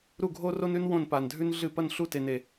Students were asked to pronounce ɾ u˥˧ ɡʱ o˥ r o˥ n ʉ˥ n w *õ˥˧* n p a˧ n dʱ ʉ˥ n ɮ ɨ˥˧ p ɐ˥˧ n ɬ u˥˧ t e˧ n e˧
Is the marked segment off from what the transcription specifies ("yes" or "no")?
no